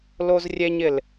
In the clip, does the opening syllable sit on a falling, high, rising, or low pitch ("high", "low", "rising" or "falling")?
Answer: high